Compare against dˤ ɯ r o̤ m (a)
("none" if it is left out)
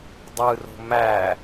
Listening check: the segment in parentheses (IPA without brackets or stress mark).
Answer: æ